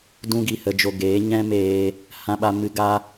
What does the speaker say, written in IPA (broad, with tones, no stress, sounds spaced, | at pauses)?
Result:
d ũ˧ ɡ i˨ h ə˨ d͡ʒ o˨ ɡ eː˨˦ ɲ ɛ̃˦ m eː˧ | h ã˧ ɓ a˧ m ɨ˧ ɡ a˦